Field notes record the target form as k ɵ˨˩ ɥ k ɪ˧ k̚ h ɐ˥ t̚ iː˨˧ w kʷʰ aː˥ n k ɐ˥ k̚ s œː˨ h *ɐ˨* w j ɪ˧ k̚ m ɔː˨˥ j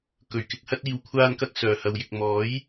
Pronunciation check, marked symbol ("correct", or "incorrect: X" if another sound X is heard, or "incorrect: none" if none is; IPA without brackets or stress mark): incorrect: ɐ˧